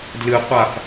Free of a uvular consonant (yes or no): no